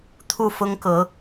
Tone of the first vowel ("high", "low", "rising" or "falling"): falling